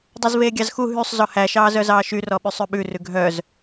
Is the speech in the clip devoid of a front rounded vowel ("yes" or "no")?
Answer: no